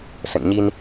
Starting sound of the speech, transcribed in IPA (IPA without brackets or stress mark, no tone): s